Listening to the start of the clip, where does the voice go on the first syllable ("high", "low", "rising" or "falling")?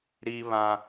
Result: high